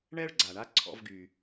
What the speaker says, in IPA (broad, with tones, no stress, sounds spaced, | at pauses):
ɳ ɛ˥ ɭ ɡ͡ǀ a˩ ɳ a˥ ǀʰ ɔ̰˧ v ɡ y˩